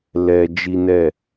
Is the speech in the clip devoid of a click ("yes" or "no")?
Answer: yes